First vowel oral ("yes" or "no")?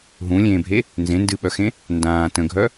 no